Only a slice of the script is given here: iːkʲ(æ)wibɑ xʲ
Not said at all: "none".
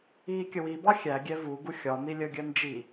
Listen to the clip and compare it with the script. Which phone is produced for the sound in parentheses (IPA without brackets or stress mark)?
ə